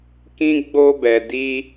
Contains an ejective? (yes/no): no